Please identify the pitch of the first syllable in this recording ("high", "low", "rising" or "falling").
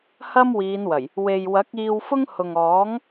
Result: high